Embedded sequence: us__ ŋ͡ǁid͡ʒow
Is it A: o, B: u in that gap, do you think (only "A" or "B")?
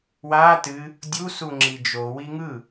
B